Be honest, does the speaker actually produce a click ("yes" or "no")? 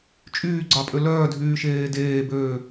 yes